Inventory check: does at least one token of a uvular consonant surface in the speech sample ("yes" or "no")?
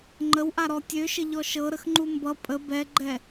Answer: no